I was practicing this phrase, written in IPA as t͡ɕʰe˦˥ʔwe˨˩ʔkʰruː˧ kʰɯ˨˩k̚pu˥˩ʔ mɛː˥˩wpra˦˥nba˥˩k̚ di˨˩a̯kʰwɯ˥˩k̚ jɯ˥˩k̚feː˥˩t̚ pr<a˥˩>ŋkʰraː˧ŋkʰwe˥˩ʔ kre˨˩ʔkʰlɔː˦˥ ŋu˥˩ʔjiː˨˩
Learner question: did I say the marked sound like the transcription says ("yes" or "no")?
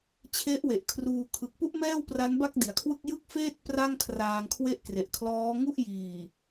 yes